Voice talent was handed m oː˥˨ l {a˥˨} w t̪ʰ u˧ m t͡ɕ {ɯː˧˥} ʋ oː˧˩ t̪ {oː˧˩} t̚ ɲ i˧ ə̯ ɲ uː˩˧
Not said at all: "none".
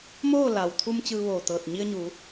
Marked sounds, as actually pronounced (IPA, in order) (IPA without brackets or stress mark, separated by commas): a˩, ɯː˧, ɤː˧˩